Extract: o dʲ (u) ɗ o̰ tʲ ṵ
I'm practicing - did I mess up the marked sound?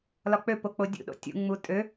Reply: yes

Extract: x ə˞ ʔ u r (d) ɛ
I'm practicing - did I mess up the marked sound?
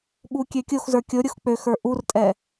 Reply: yes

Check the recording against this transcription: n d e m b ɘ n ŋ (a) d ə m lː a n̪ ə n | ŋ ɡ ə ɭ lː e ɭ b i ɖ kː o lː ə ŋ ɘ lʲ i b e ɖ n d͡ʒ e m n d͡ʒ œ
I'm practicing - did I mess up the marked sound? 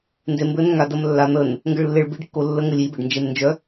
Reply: no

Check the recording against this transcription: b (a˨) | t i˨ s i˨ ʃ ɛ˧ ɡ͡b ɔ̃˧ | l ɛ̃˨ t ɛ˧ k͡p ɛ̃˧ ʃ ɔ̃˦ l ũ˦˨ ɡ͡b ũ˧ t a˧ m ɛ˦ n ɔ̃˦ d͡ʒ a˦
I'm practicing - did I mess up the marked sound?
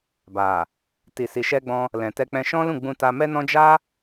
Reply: no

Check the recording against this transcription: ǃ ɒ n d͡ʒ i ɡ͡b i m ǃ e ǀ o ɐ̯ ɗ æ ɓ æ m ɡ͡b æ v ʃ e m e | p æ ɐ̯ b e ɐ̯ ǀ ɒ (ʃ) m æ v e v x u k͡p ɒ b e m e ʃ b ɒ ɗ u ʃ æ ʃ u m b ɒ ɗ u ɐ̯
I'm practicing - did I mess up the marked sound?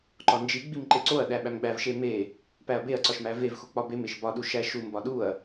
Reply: no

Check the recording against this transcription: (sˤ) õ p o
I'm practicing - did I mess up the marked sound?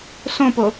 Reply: yes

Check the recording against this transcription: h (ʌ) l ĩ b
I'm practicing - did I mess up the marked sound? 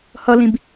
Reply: no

